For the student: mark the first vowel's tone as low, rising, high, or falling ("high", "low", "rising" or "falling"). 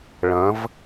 rising